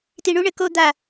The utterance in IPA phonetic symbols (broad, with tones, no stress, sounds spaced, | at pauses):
t i˧ ɳ u˥ ɳ ɘ˩˧ k o˥˧ d̪ a˧˩